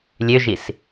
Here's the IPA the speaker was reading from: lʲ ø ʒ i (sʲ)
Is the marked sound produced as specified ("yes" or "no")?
no